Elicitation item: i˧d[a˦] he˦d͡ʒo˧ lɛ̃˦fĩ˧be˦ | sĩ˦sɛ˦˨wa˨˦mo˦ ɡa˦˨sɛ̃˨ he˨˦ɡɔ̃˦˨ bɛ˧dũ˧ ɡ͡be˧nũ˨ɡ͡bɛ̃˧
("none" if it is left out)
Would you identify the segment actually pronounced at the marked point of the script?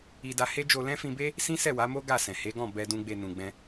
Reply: a˧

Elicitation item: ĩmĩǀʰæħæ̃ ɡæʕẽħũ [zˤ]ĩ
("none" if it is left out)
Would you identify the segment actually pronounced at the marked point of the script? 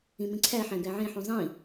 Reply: zˤ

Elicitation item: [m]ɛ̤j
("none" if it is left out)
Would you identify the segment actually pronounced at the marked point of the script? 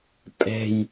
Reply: pʼ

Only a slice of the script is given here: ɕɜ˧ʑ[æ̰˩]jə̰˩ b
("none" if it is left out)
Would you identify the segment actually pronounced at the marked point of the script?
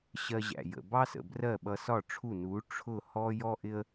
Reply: æ̰˩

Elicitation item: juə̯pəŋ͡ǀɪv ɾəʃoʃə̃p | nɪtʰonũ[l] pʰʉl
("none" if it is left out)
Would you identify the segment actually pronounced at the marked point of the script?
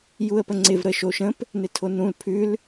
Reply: l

